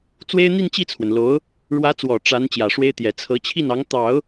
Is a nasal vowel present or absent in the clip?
absent